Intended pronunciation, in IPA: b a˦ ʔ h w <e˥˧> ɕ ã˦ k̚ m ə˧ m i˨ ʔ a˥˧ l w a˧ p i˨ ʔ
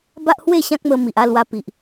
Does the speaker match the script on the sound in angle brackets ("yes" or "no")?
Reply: yes